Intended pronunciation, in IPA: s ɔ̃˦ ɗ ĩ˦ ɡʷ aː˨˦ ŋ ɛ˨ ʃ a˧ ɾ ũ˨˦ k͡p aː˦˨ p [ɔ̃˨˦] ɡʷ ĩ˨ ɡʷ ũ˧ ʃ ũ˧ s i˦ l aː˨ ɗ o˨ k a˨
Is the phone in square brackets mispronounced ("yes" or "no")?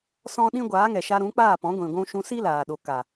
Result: no